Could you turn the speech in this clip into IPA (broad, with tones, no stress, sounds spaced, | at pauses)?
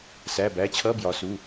s æ˩˧˩ b æ˩˧˩ t͡ɕʰ ʌ˧˥˧ b j ɒ˩˧ s u˩˧˩